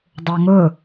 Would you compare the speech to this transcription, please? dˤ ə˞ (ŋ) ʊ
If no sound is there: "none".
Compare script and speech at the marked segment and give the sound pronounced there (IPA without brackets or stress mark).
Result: ŋ